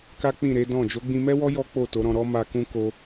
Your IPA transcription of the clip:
k a˦ k͡p ĩ˦˨ ɾ e˨˦ d ɔ̃˦˨ d͡ʒ o˨˦ ɡ͡b ĩ˧ m ɛ˦ w ɔ˦ j ɔ˦ k͡p o˦˨ t o˨˦ ɾ ɔ̃˧ ɾ ɔ˦ m a˧ k ũ˦ k o˧

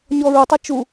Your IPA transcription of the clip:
ɲ ɔ ɹ o tˤ a t͡ʃ u

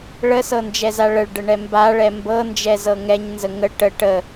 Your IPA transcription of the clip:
ɭ ə s ɤ n d͡ʒ ɛ z a ɭ ə ɭ ɖ ə ɳ ɛ m b a ɭ ɛ m b ɤ n d͡ʒ ɛ z ɤ ŋ ɛ ɲ n z ə ŋ ə ʈ ə ʈ ə

